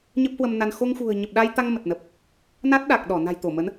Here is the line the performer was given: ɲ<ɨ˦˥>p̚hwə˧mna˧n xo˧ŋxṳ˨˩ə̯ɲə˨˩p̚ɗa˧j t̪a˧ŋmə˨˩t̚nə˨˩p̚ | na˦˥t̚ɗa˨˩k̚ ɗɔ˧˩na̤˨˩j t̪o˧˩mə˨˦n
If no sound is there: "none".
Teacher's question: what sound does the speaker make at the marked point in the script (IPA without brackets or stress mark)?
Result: ə˦˥